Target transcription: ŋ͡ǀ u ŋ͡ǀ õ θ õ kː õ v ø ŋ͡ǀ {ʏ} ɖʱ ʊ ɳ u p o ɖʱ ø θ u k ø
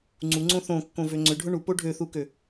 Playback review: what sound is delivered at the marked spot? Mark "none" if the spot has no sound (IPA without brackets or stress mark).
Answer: ʏ